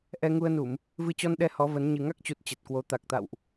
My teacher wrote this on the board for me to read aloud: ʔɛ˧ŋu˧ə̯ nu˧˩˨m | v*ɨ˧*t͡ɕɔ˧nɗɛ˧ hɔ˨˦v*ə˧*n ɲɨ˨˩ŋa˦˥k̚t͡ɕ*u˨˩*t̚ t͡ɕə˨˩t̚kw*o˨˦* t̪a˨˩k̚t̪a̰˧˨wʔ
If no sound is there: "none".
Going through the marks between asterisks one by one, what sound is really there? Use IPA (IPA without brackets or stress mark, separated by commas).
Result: ɨ˧, ə˨˦, u˨˩, o˨˦